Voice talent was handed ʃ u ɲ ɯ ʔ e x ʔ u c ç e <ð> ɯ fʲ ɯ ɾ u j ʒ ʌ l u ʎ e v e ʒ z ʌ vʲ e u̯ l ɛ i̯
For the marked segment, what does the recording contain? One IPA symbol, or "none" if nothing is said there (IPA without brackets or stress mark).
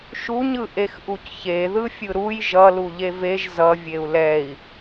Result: ð